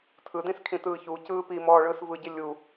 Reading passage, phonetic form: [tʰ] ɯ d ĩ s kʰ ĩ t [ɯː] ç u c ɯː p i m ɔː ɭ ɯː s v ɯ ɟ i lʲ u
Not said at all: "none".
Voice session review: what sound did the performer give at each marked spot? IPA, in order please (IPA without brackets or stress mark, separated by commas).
tʰ, ɯː